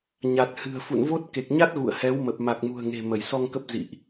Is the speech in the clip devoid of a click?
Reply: yes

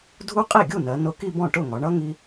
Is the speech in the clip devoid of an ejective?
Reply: no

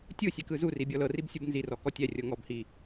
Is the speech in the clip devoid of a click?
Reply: yes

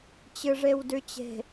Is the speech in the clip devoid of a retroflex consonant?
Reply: no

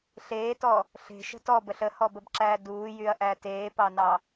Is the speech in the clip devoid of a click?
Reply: no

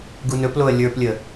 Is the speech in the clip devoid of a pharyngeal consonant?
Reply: yes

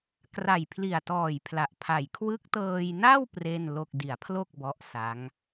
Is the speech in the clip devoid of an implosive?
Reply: yes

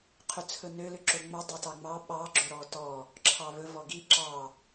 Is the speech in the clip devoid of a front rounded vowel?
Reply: no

